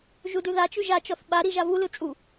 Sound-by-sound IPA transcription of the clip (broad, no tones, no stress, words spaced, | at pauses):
ʒudʉðat͡ʃʉ ʒat͡ʃɔθ ɓa ɾiʒavulɯ t͡sʼu